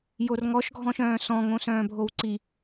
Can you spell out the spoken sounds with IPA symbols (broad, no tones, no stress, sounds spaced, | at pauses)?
j o r ŋ ɔ ʃ ɡʱ ɔ̃ ʃ œ̃ː s ɔ̃ ŋ õ s œ̃ː bʱ o w ǀ i